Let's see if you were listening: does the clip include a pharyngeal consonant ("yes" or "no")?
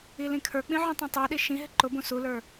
yes